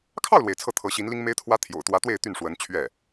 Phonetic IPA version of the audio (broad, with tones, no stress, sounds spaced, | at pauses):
kʰ ɑ˥˩ ʊ̯ l w e˩ ɪ̯ t͡sʰ ɤ˥˩ t̪ʰ ɤ˧˥ ɕ i˧˥ n l i˥ ŋ m e˥ ɪ̯ t̪ʰ w ä˥ t̪ʰ j o̰˨˩ ʊ̯ t̪ w ä˧˥ t̪ w e˥˧ ɪ̯ t̪ y˥˩ n ʂ w ə˧˥ n t͡ɕʰ ɥ ɛ˥˩